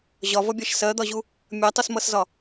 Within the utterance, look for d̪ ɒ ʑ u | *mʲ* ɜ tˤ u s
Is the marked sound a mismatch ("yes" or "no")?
no